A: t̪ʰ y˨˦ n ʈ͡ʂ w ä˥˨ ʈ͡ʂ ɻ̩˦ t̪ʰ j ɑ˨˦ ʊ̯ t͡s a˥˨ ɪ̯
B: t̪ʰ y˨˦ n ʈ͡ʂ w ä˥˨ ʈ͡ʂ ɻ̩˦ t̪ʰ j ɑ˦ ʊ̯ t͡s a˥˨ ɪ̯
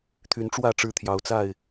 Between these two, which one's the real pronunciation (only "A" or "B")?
A